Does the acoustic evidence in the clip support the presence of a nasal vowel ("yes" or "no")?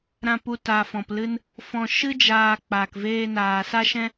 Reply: yes